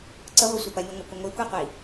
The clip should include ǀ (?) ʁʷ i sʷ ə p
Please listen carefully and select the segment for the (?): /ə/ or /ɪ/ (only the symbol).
ə